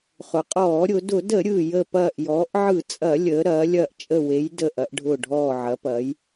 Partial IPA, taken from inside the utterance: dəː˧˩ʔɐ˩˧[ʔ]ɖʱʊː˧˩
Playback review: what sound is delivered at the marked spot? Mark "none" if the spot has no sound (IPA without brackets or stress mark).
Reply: ʔ